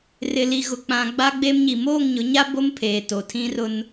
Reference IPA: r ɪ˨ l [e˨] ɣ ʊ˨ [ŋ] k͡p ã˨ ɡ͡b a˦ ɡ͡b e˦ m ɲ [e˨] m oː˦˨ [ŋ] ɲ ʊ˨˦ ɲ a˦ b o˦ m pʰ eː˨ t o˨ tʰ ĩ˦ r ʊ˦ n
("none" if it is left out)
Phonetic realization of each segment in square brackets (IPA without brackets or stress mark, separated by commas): i˨, none, i˨, ŋ